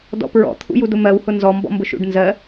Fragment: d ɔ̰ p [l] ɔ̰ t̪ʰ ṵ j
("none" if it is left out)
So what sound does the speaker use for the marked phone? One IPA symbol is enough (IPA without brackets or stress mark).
ɹ